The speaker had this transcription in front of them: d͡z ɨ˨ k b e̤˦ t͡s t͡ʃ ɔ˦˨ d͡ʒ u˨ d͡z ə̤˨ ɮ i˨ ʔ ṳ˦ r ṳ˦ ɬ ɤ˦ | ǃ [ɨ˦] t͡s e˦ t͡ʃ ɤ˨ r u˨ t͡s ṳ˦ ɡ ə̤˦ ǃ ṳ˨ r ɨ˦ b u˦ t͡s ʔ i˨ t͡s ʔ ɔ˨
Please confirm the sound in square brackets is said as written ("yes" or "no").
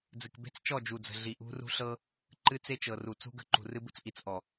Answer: yes